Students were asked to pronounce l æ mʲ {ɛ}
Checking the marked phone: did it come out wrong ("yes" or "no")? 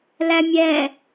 no